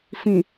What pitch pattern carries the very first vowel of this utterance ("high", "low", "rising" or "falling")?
low